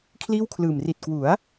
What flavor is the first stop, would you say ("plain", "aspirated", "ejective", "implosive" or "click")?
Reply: aspirated